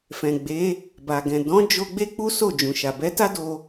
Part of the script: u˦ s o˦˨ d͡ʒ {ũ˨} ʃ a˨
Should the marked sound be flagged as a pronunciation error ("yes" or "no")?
no